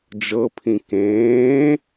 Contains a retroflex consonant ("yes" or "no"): no